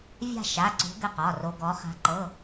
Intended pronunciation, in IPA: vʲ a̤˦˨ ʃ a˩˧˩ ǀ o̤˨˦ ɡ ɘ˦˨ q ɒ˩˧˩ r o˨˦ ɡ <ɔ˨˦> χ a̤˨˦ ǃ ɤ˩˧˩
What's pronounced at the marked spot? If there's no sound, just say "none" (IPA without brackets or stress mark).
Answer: ɔ˨˦